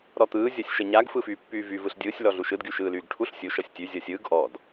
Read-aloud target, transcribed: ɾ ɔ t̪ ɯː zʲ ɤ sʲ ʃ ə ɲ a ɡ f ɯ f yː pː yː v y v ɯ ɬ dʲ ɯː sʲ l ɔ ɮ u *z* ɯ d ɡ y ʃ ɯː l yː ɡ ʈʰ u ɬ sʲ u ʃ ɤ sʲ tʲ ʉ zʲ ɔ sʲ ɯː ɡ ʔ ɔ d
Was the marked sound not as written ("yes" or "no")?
yes